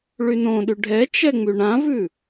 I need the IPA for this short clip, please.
ɭynõɗy ɖʱɛ t͡ʃɛŋ͡myɳãvʉ

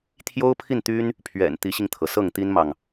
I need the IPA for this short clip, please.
t̪ʰjo˥ʊ̯pʰi˥˩nt̪y˥n | pʰɥɛ̰˨˩n t̪i˧˥ɕi˧ŋt̪ʰɤ˩sɤ˥˩ŋ t̪i˥nmɑ˨ŋ

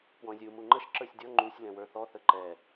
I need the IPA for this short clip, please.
pwɔ̃zʲu muŋ͡ǃəʃ ǁə˞sʲdʲɔ ŋ͡ǃusʲ lɛ̃wə˞θɔ θəǃɛ

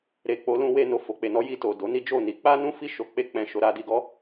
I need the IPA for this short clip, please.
ɾe˨ k͡po˧lũ˧we˧ no˨fo˨k͡pe˨nɔ˨˦ ji˧to˨ do˨˦ni˦d͡ʒo˦˨ ni˨˦k͡pa˦nũ˦ fi˦˨ʃo˧k͡pe˦ k͡pɛ̃˧ʃo˧ ɾa˧ di˧ɡɔ˦

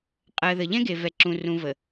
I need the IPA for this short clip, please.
qʼɜ˨ðə˨ ʎɛ̃˦ɡe˨vɛ˨ ǁũ˨rũ˨ və˨

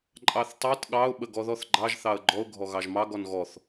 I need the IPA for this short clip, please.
ǃʼɑθtˤet ɠɑʊ̯ ɓəɡɔðɔθɡ͡ǃɑʒ θɑə̯ɡ͡ǃɔʊ̯ ɡʱɔɣɑʒmɑ ɡɔnɣɔθ

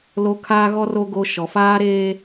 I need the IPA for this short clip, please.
lo˦ kʰaː˦ɣɔ˦ro˦ ɡo˦ ʃɔ˨faː˦ɾeː˦

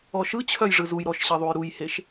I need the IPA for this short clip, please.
ɔʃɯt͡ɕʰœj ʐɯzujɾɔʃ ɕiðˤujɾujheʃ

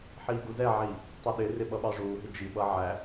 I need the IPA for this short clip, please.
ħiːɡuzɛʕiː | tˤʌɗɪrɪ ɓʌɓɑʐuːɦɪ d͡ʒiɓʌ ʕæ

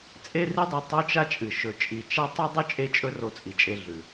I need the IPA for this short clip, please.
t͡sʼe˦ri˦dˤo˨ tˤo˦t͡ʃa˦ t͡ʃʼɨ˩ ʃɵ˨t͡ʃʼi˨ t͡ʃa˥tˤɨ˥ dˤɵ˥t͡ʃʼe˦t͡ʃʼɵ˦ ro˨t͡sʼi˩t͡ʃʼe˨ ɮʉ˩

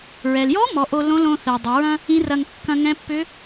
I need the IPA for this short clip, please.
ɹɛ˩ljɔ˧˥ mɔ˩˧ʔo˧ lõ˧˥lõ˧ θɛ˩dˤɐ˩˧ɹɐ̃˥ | ĩ˧˥rɐ˧ŋ kːɐ̃˧ŋɛ̃˧˥pːʏ˧˥

